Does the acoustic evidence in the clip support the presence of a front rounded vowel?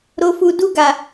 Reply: no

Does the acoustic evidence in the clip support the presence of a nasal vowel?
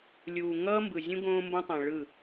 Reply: yes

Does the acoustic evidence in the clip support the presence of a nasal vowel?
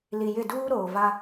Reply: no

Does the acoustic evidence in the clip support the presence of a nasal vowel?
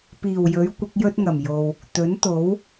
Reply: no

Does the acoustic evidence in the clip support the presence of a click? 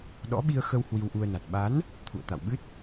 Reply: no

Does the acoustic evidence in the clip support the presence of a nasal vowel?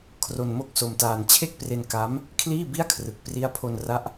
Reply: no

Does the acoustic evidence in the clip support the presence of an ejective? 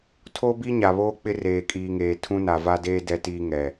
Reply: yes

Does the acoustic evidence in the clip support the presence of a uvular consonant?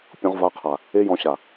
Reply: yes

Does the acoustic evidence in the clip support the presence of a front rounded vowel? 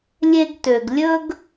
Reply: yes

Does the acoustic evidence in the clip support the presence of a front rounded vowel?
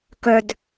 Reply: yes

